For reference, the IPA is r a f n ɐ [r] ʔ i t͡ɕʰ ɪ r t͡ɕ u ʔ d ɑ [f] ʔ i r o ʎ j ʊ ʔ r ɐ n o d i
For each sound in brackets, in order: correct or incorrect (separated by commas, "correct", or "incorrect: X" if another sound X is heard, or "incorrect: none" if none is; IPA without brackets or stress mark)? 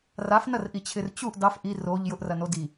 correct, correct